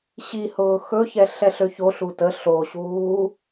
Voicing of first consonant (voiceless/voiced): voiceless